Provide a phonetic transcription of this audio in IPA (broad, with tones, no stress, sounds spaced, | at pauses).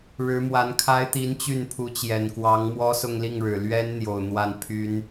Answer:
ɻ ɻ̩˧˥ m w a˧˥ n kʰ a˥ ɪ̯ t̪ i˧˥ n t͡ɕ y˥˩ n pʰ u˧˥ t͡ɕ j ɛ˨˩ n k w ɑ˧˥ ŋ m w ɔ˥ s ʊ˥˧ ŋ l i˥˩ ŋ ɻ ɻ̩˨˩ l ɥ ɛ˥ n n̪ j o˨˩ ʊ̯ n̪ w a˥˩ n pʰ y˥ n